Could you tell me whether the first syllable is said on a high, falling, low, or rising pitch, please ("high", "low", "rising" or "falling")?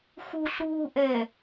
low